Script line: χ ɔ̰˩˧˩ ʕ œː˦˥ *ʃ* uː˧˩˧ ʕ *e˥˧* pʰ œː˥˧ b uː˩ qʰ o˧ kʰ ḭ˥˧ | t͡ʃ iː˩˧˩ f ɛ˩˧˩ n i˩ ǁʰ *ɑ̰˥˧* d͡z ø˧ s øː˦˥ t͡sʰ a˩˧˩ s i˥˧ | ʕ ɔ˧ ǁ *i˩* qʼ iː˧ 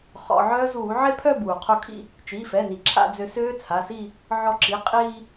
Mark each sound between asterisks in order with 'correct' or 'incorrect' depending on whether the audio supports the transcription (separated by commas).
incorrect, correct, incorrect, incorrect